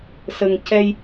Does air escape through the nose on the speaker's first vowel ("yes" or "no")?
no